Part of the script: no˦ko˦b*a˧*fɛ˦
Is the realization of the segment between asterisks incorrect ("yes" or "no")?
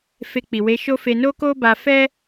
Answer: no